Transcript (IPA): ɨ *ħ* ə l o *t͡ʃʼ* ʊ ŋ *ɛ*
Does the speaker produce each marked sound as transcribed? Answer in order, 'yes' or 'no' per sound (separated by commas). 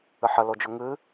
yes, no, no